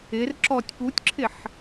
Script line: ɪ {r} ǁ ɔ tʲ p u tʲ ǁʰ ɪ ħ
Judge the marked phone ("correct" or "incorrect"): correct